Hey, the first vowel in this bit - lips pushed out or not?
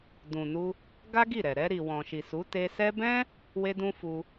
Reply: yes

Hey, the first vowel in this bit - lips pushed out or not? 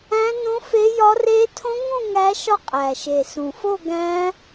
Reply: no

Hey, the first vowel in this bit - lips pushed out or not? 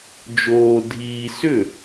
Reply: yes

